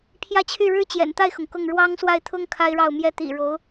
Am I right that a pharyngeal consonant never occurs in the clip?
yes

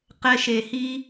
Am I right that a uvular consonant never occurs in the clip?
no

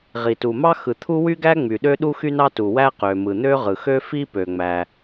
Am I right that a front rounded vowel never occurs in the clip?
no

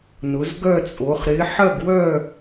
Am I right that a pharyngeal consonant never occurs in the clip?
no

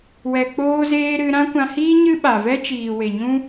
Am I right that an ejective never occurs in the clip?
yes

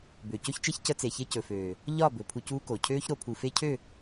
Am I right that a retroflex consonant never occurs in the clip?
yes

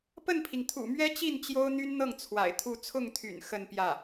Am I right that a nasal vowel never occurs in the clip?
yes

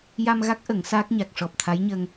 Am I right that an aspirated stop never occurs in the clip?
no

